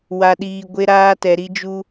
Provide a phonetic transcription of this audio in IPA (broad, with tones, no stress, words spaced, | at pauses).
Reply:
wa˨ɗiː˨ ɡʷe˦ ɾaː˦tɛ˨ɾi˦d͡ʒu˦